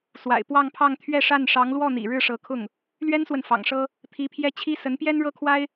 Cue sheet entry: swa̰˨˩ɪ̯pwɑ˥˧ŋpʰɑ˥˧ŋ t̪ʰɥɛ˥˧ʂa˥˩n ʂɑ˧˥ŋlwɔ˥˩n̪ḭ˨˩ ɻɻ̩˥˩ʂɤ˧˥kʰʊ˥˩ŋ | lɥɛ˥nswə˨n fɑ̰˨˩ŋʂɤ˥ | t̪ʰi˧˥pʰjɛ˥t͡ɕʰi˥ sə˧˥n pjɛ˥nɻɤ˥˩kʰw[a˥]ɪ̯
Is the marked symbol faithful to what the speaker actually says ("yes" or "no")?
yes